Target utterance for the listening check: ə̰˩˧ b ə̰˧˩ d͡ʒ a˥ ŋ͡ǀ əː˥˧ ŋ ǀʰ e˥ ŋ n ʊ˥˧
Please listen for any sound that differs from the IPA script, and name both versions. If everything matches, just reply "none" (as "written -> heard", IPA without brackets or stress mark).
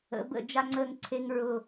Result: n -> ɹ